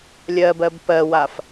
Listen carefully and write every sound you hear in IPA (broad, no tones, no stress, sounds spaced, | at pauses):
lʲ ɜ b ɜ b p ɜ w a f